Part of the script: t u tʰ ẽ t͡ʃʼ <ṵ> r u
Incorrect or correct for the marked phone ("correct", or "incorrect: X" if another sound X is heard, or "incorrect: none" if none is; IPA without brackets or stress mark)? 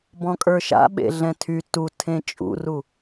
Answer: correct